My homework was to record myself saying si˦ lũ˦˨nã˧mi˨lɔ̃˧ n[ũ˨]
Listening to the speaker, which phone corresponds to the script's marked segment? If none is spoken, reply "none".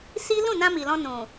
ũ˨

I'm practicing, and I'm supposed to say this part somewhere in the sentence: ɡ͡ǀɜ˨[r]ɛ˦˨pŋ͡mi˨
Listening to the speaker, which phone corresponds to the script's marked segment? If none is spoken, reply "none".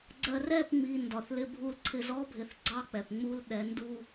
r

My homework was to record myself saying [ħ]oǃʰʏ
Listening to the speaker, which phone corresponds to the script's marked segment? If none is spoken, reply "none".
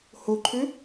h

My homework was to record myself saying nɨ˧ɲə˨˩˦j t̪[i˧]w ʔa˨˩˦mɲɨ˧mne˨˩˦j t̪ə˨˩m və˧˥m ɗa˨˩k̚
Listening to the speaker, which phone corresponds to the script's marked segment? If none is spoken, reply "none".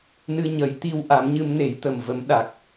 i˧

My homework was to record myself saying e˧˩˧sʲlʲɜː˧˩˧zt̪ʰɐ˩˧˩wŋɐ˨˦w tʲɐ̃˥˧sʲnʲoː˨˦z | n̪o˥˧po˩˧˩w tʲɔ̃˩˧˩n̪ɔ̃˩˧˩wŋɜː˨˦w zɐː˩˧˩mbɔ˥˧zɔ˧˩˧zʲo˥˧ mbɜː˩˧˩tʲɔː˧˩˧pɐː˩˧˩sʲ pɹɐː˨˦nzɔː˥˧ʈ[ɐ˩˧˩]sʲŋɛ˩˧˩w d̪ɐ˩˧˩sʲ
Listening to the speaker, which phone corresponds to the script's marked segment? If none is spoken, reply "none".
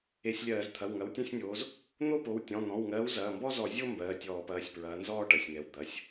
ɐ˩˧˩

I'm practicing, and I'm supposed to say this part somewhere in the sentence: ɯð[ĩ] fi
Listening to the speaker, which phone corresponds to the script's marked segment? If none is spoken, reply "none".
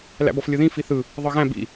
ĩ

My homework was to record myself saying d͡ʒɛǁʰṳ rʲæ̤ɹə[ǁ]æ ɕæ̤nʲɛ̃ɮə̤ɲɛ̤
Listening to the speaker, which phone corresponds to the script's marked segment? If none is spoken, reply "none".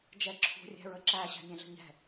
ǁ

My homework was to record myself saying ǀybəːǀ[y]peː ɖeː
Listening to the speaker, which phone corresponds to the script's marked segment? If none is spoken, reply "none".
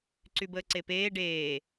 e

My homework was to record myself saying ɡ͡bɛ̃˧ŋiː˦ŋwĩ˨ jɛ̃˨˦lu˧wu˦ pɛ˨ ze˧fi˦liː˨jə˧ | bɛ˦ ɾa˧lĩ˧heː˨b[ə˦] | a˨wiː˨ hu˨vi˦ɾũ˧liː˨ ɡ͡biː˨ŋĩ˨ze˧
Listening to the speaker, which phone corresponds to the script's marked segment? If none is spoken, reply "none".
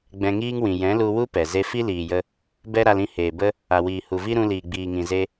ə˦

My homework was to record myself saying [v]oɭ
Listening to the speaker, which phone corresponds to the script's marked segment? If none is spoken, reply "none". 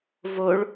v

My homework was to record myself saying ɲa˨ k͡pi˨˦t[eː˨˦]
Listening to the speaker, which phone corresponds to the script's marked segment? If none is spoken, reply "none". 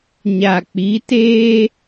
eː˦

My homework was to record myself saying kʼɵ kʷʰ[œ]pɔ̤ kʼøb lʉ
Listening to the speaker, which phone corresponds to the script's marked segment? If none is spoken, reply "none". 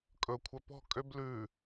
œ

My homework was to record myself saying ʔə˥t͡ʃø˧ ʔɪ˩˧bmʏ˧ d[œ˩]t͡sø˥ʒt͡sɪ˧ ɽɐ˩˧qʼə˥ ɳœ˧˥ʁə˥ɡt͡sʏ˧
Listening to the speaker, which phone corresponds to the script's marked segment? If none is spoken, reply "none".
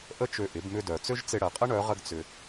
œ˩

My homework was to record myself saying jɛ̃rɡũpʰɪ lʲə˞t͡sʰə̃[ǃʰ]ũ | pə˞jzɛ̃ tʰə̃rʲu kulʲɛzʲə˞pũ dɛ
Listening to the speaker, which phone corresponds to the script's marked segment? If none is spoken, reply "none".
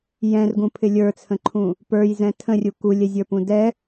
ǃʰ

